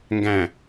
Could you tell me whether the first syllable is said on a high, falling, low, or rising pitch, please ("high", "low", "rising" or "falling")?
low